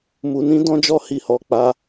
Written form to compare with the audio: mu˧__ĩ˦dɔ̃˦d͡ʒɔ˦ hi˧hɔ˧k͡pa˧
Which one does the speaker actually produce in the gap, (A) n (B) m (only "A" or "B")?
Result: A